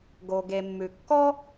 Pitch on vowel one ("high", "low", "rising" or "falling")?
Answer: low